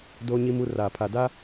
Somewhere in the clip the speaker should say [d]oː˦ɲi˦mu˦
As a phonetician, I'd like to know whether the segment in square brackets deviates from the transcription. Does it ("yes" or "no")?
no